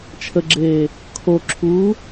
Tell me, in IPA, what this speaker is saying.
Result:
t͡ʃʰ ə ɡ͡ǁ eː | kʰ o ǁʰ uː

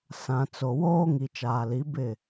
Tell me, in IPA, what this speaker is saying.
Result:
s ã˨ t͡s o˨ w oː˦ ŋ i˨ t͡ʃ aː˨ l i˨˦ b ɪ˦˨

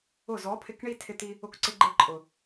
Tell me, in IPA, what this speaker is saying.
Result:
ʊ˦˨ z ɔ˨˦ pʰ ɪ˧ k ɳ i˦ tʰ ɪ˧ t̪ i˧ | ʊ˧ k ǀ ɪ˧ ɡ͡ǃ e˧ ǃʼ ʊ˨

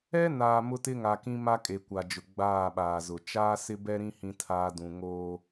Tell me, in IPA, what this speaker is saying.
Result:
ɛ˦ n aː˨ m ʊ˦ t ɪ˦ ŋ a˨ k ĩ˦ m a˦ kʼ e˨ kʷ a˨ d͡ʒ ʊ˨ ɡ͡b aː˦˨ ɓ aː˨ z ʊ˨ t͡ʃ aː˦ s ɪ˦ b ɛ˦ ɾ ĩ˦ h ĩ˦ tʰ aː˦ d ũ˨ ŋ oː˦

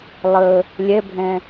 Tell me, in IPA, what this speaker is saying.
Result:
lˠ ə | lʲ ɛ bʱ ɛ̃

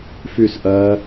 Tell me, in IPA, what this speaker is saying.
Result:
f y s ʔ ɜ

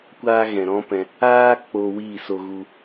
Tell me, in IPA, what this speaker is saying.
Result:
kʷ aː˧ ɣ ɛ̃˨ ɾ ɔ̃˦ p ɛ̃˧ | aː˦ k͡p oː˧ w iː˦˨ s o˧ ɣ u˧

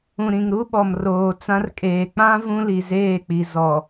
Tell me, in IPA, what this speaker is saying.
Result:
ũ˨ ɾ ĩ˨ ŋ ɾ u˦ ɓ ɔ˨ m r oː˨ t͡s ã˦ r kʼ eː˨ k͡p ã˦ v ũ˦ l i˨ z eː˦˨ k͡p i˨ z ɔ˨

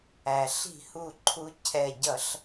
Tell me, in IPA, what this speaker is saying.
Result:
æ˩ ɬ i̤˧˩˧ h u˧˩ ǃʰ u˨˦ cʰ ɛ˧˩ ɟ ʌ˧˩˧ ɬ

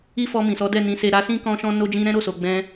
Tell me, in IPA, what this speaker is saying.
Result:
i˦ f ɔ˧ m ĩ˨ s ɔ˨˦ d ɛ˦˨ n ĩ˨˦ s e˧ ɾ a˧ s ĩ˦ k ɔ̃˦ ʃ ɔ̃˦ n o˦ d͡ʒ ĩ˦ ɾ ɛ̃˦ ɾ o˦˨ s o˨ ɡ͡b ɛ̃˧

